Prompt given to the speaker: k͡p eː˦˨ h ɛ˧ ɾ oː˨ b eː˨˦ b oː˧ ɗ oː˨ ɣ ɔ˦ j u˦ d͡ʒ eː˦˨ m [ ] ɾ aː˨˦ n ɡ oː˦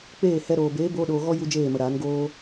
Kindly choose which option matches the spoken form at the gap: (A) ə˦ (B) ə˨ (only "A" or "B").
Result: B